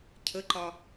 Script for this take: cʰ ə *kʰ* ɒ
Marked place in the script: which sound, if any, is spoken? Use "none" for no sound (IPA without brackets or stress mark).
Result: ǃ